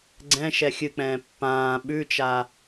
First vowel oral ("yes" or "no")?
no